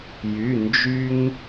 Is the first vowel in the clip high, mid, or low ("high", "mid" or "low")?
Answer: high